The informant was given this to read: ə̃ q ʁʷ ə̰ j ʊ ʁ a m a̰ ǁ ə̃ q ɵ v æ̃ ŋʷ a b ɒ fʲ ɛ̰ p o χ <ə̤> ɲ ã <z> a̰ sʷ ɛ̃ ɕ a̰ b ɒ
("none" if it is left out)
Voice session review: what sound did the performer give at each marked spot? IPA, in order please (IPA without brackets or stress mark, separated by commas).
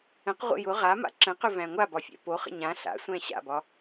ə̰, ɬ